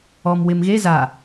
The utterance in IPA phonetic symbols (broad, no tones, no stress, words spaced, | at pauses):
ɔm wɪm ɣe za